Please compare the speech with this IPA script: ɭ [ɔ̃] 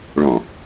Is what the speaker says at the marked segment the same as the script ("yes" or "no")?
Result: yes